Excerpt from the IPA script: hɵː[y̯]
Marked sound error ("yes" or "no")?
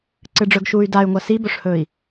yes